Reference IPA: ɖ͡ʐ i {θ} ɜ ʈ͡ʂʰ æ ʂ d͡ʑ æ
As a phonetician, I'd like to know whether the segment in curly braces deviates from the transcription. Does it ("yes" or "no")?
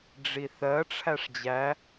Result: no